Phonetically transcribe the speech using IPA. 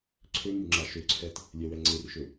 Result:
ǀʰ ø m y ŋ͡ǁ a ʃ ø ǀʰ ɛ t | lʲ ɛ w ɛ ŋ͡ǀ e r ʃ ø

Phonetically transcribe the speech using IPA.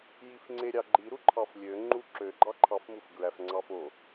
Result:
j i f ŋ͡ǀ e ɾʲ ɑ ɡ͡ǃ i ɾ u ǃʰ ɑ f lʲ ø ŋ͡ǃ u ǁ ø ɡ͡ǃ ɑ ǃʰ ɑ f m u f ɡ ɹ æ f ŋ͡ǀ ɑ f o

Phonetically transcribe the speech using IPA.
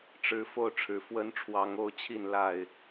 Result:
ʈ͡ʂ ɻ̩˨˦ f o˥˨ ʊ̯ ʈ͡ʂʰ ɻ̩˨˦ f w ə˦ n ʈ͡ʂʰ w ɑ˨˦ ŋ o˥˨ ʊ̯ t͡ɕʰ i˥˨ n l a˥˨ ɪ̯

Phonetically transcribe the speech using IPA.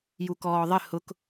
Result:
j u k ɔː ðˤ ɪ h ʊ k

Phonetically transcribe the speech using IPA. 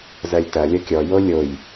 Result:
z ɜ lʲ t ɐ lʲ ɐ kʲ ɔ j o lʲ o j

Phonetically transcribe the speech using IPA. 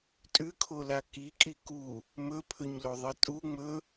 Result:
tʼ ʉ kʰ o l a k i kʼ i k u | m ɵ pʰ ɵ ɲ l o ðˤ ɨ tʼ u ŋ͡m ɵ

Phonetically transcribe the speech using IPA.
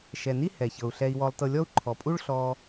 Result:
ʃ ɛ˩ n i˦ h ɛ˩ ç ɤ˩ u̯ ɬ ɛ˨ i̯ w ɔ˨ lˠ t ɤ˨ lʲ ɔ˦ u̯ ǃʰ ɔ˩ pʼ u˦ ɭ ɬ ɔ˨

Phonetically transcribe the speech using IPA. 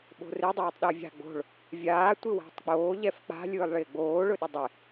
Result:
ɓ o̤ r ɪ dˤ oː tˤ ɗ ɛ vʲ a̤ ɡ͡b o̤ ɭ | vʲ aː tʷ ɪ w a̤ tˤ k͡p oː ʎ ɛ f k͡p a̤ lʲ ɯː lˠ ɭ ɪː ɡ͡b oː ɭ ɵ ɗ ɪ dˤ ɪ

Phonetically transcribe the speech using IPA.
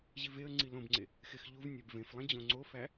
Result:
ʑ i v e ə̯ ŋ͡ǀ i l õ b ŋ͡ǀ e | x e x ʎ u v nʲ æ b v ẽ f lˠ ẽ d͡ʑ õ ŋ͡ǀ o f æ

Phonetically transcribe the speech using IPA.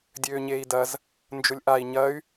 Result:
dʲ øː ɲ eː i̯ d ɐ z | n d͡ʒ ʊ lʲ ʔ a i̯ ɲ ɐ y̯

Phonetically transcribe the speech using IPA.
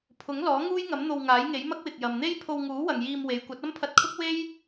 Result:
pʰ ʊ˨˥ ŋ l ɔː˨˥ ŋ uː˥ j ŋ ɐ˨˥ m n̪ o˧ w ŋ aː˨˥ j ŋ e˨˥ j m ɐ˥ k̚ w ɪ˨ k̚ j ɐ˨ m n̪ e˥ j pʰ o˧ w ŋ uː˨˥ w ɐ˨ ŋ j iː˧ m w e˨˧ j kʷ ɐ˨˥ t̚ ɐ˥ m pʰ ɐ˧ t̚ kʰ ʊ˥ k̚ w e˥ j

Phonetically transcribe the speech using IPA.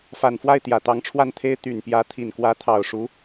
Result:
f a˨˩ n f w a˥˩ ɪ̯ t̪ j ä˨˩ t̪ ɑ˧˥ ŋ ʈ͡ʂʰ w a˥˩ n t̪ʰ e˥ ɪ̯ t̪ y˨˩ n p j ä˧˥ t̪ʰ i˨˩ n k w ä˧˥ t̪ʰ ɑ˨˩ ʊ̯ ʂ u˧˥

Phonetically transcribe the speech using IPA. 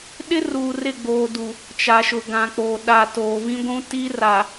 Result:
ɗ ɪ˦ r uː˨ r ɪ˦˨ ɡ͡b oː˨ d u˨ | t͡ʃ a˨ ʃ ʊ˨ ɡ ã˨ k͡p oː˨ ɗ a˨ t oː˨ v ĩ˦ ɡʷ ũ˦ t i˦ r a˨

